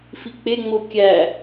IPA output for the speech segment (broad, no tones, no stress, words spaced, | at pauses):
fik͡peŋ͡mo kʲæ